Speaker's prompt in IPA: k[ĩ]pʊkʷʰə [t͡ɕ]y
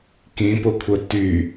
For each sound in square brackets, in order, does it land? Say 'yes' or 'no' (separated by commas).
yes, no